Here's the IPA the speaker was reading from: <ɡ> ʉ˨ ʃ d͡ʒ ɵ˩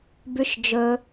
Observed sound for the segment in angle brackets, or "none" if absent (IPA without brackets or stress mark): b